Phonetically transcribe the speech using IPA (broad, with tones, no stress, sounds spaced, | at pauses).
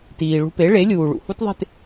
t iː˩ ɭ ṳ˧ p e˩˥ ɭ e˩˥ lʲ uː˩ ɭ ṵ˩ h u˥ t ðˤ e̤˥˩ t